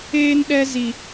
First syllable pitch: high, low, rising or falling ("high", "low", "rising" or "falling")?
high